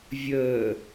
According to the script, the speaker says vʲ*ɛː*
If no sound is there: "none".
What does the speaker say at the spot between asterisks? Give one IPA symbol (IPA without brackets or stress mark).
əː